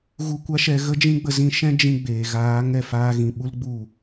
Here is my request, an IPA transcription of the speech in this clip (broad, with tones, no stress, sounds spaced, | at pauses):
ɣ u˧ kʷ a˦ ʃ ɛ˧ ɣ ə˦ d͡ʒ ĩ˦ ɡ͡b ə˧ z ĩ˧ ʃ ɛ̃˦ d͡ʒ ĩ˧ ɡ͡b eː˨ ɣ aː˨˦ ŋ ɛ˨ f aː˧ ɣ ĩ˨ ɓ u˦ l ɡ͡b u˦˨